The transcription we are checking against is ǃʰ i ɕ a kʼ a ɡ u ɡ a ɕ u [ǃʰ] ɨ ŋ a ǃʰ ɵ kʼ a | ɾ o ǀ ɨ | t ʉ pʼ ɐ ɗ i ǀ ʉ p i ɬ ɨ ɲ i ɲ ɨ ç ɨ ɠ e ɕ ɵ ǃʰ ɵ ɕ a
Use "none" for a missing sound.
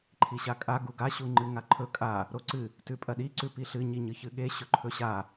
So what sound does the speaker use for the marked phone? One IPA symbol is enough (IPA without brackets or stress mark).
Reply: ŋ͡ǃ